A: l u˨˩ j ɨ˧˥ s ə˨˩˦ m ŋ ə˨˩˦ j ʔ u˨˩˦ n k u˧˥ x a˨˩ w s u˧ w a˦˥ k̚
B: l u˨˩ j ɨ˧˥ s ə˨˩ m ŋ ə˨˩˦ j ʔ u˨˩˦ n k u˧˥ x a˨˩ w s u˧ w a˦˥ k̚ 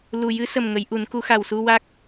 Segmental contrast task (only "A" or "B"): B